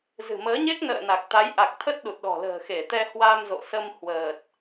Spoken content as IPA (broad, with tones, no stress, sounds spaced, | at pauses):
z ɨ̤˨˩ m əː˨˦ ɲ e˦˥ k̚ n ə̰ː˧˨ n a˨˩ k̚ t̪ a˨˦ j ʔ a˨˩ k̚ t̪ʰ ə˦˥ t̚ ɗ u˨˩ t̚ ɗ ɔ̤˨˩ l ə̤ː˨˩ x e˧˩ t̪ ɛ˧ h w a˧ m z o̰˧˨ s ə˧ m h w əː˨˩ t̚